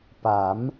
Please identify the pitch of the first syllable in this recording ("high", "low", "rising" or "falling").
rising